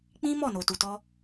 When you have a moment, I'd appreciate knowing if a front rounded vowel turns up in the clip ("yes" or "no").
no